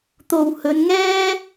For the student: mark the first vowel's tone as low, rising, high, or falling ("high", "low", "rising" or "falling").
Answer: low